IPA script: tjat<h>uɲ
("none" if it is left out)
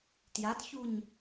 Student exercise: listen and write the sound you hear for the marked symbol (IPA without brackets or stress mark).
ç